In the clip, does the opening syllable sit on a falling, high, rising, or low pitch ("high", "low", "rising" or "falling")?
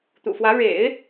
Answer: low